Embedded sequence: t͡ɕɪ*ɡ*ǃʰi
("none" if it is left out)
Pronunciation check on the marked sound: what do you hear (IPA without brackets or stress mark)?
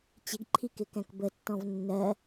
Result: ɡ